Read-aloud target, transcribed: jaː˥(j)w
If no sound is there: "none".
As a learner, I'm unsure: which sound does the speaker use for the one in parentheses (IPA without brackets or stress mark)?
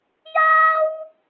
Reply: none